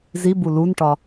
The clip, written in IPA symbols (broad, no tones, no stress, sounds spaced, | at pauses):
z i b u l u n ʈ ɒ